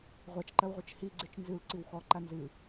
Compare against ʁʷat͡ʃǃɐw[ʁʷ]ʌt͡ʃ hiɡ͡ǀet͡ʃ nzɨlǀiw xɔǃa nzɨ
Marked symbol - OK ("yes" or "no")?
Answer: yes